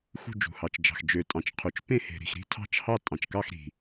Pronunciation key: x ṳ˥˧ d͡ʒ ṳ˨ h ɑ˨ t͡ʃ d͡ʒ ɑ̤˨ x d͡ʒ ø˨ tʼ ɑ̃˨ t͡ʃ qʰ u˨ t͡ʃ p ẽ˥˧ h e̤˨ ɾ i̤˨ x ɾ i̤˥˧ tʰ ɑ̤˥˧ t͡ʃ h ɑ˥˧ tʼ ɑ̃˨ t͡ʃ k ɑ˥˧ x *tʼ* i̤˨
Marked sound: incorrect: ɾ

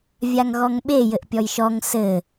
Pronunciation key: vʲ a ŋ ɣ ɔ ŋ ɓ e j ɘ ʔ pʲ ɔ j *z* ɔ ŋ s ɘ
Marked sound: incorrect: ʃ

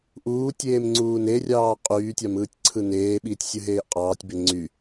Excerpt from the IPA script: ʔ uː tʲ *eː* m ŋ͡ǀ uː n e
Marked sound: correct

